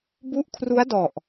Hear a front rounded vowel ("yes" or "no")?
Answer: no